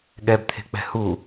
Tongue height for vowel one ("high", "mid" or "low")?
mid